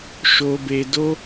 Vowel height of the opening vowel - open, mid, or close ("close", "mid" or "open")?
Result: mid